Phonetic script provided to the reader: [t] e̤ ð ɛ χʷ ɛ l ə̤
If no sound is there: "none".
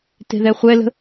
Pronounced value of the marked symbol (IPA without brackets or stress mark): t